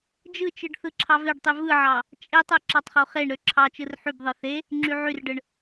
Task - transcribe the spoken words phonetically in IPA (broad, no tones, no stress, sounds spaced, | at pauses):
d͡ʒ ɯ t͡ʃ ɯ ɖ θ ɯ ǁʰ ɑ v e ɖ tˤ y v ɯ ʕ ɑ | t͡ʃʼ e tˤ ɯ ǁ ɑ tˤ χ o χ e ɳ ɾ ø ǁʰ ɑ t͡ʃ ɯ r ħ y b ðˤ ɯ θ e | ŋ͡ǁ y ʕ y r ɖ ɯ ɳ